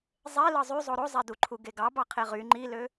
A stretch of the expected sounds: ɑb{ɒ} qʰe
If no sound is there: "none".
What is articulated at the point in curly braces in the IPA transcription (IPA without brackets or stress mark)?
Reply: ɑ